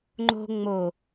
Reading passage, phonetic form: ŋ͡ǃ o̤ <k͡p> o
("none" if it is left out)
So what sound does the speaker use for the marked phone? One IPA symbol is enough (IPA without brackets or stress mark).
ŋ͡m